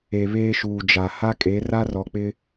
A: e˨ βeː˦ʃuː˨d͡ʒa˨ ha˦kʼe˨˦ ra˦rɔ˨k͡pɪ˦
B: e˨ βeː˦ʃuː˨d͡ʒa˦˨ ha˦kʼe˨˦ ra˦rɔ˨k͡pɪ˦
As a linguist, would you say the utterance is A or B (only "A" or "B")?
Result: A